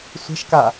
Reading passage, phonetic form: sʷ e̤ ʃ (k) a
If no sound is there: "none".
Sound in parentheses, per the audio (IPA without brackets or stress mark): k